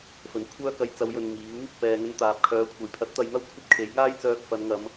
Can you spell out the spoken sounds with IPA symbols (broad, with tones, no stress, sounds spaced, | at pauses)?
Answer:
f ɵ˨ n kʷʰ œː˥ k ɐ˧ j t͡s ɐ˨˧ w j ɵ˨ n m iː˨˥ w | p ɛː˨ ŋ ɵ˧ n t̪ aː˨ p̚ kʰ œː˨˥ kʷʰ ɐ˨ j pʰ ɐ˨˥ t̚ t̪ ɐ˨˧ j n̪ ɐ˥ w kʷʰ ɐ˥ p̚ kʰ e˨˥ j ŋ aː˥ j t͡s œː˧ k̚ f ɐ˨˧ n ŋ ɐ˨˧ m